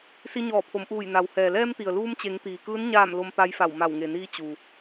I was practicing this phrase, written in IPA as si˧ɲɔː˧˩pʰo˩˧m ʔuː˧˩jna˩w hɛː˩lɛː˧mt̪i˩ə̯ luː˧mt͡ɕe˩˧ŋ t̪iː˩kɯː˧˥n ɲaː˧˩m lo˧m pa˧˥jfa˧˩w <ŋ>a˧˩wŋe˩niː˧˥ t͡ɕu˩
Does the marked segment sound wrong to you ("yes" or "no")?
yes